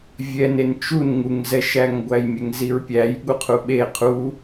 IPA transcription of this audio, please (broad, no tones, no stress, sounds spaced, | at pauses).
vʲ ɛ n e n t͡ʃ u n ŋ u ŋ z ɛ ʃ æ ŋ ɡʷ æ j mʲ ɛ ŋ z i ɹ pʲ æ j ɠ u qʰ u ɓ e qʰ u